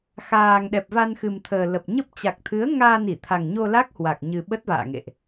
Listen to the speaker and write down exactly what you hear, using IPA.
x aː˨˩ ŋ ɗ ɛ˨˩ p̚ v a˧ n x ɨ˨˩ m t̪ʰ əː˨˩ l ə˨˩ p̚ ɲ ə˦˥ p̚ t͡ɕ a˨˩ k̚ t̪ʰ ɨ˨˦ ə̯ ŋ aː˧ n i˧˩ t̪ʰ a˨˩ ŋ ɲ o˧ l a˦˥ k̚ h w a˨˩ k̚ ɲ ɨ˨˩ ɓ ə˦˥ t̚ v a̰ː˧˨ ŋ ḛ˧˨ ʔ

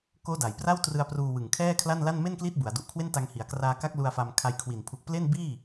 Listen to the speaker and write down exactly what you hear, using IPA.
k oː˦˥ d a˩˦ j p r a˥˩ w t r ɯ˧ a̯ p r uː˧ w ɯ˨˩ ŋ kʰ ɛː˥˩ kʰ l a˥˩ n l a˥˩ n m e˥˩ n k l i˦˥ t̚ b u˩˦ a̯ d u˨˩ ʔ kʰ w e˥˩ n t a˧ ŋ h i˩˦ a̯ k r aː˧ k a˦˥ k̚ l u˧ a̯ f a˧ m kʰ a˧ j kʰ w i˨˩ n pʰ u˨˩ k̚ p l e˥˩ n b iː˥˩

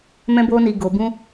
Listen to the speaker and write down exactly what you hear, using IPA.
m ɛ̃˦ b oː˦ n i˧ ɡ o˧ b ũ˦

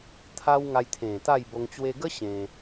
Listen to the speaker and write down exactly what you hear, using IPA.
t̪ʰ a˦ w ŋ a˧ j t̪ʰ ẽ˨˩ t̪ a˥˧ j b o˧ ŋ t͡ɕ w e˧ ɡ ə˦ ɕ ẽ˧

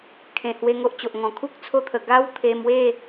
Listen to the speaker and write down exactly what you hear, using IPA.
kʰ ẽ˨˩ h w e˧ ŋ o˦ ʔ t͡ɕ o˨ ʔ ŋ ɔ̃˨˩ kʰ u˦ k̚ t͡sʰ o˦ t̪ʰ ə˨˩ ɡ a˦ w t̪ʰ e˧ m w e˥˧

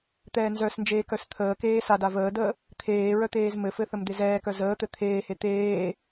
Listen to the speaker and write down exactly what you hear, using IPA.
t̪ ɛː n z œ s n d͡ʒ eː k œ s t̪ʰ əː k eː s a d a v əː d əː | t̪ʰ eː ɹ œ t̪ eː z m ɘ f ɘ θ ə m d̪ e z ɛː k œ z əː t̪ ɘ t̪ʰ eː h e t̪ eː

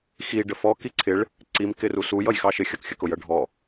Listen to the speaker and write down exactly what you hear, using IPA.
x i ɖ ə f ɔ k i ǀʰ ɪ ɭ | ǀ i m k ɪ r u s u j ʌ j x ɑ ʃ ɪ xʲ ʌ k xʲ ə k ʊ j ʌ ɖʱ ɔ

